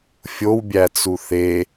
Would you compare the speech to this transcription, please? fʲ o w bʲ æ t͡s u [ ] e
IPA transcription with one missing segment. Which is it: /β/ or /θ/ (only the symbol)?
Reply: θ